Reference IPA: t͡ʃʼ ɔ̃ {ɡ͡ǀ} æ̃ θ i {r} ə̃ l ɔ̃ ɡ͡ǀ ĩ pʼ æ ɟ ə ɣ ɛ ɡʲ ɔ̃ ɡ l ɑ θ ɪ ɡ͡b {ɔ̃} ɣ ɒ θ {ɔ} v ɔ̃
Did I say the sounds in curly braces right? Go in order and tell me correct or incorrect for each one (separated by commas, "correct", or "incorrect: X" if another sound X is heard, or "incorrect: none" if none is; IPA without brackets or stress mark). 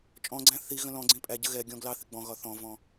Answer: correct, incorrect: ɣ, correct, incorrect: ɔ̃